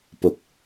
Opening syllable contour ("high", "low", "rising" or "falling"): low